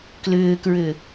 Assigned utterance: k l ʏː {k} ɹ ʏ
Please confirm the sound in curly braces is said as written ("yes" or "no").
yes